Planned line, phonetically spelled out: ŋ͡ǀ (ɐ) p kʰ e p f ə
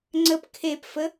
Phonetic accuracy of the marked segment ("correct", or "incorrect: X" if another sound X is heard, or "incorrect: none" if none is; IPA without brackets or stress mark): incorrect: ə